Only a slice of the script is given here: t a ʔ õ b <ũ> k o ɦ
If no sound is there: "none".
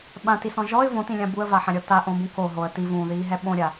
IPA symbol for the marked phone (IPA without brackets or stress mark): ũ